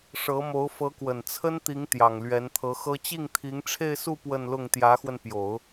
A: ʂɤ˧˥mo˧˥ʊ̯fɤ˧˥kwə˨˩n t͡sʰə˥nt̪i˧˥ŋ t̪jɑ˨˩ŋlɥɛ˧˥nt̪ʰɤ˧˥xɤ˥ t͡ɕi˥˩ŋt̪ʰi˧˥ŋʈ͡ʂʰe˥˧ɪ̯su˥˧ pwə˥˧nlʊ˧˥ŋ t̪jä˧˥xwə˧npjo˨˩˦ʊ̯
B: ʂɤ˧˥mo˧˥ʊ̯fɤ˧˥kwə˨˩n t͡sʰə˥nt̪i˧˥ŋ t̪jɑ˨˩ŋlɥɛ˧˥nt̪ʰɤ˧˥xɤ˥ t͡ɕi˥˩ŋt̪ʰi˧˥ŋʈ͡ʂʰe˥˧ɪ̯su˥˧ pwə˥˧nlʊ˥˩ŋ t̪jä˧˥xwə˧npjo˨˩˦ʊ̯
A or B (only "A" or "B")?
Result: B